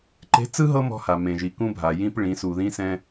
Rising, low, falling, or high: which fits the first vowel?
rising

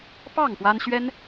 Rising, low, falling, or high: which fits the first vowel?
falling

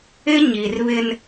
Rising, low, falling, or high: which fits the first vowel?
high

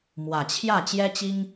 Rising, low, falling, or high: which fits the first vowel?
low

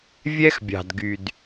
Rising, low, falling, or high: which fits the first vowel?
high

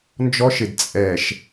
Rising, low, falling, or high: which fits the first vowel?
high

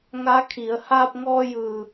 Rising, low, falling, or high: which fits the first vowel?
rising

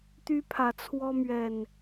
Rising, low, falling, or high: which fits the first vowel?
high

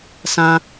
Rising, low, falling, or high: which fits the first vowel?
high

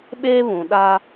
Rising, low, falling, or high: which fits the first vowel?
high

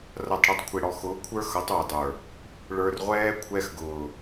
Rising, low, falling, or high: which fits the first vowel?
low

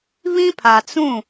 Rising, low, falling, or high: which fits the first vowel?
high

